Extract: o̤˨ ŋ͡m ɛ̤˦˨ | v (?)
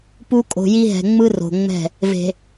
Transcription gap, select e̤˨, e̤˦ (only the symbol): e̤˨